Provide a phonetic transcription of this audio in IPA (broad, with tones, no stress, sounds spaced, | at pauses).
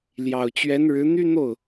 l j ɑ˨˩ ʊ̯ t͡ɕ ɥ ɛ˧˥ n ɻ ɻ̩˧˥ n̪ y˥ n̪ o˥˩ ʊ̯